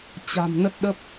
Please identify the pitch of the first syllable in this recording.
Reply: low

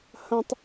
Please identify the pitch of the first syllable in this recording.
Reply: high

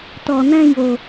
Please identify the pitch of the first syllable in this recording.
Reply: low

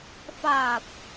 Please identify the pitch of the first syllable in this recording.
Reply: low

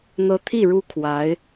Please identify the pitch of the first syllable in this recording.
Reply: rising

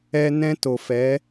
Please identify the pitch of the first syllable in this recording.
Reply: high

